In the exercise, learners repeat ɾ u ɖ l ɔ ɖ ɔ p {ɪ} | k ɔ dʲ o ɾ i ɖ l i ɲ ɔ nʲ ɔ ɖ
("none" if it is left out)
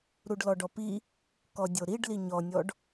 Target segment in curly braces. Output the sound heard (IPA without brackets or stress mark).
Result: i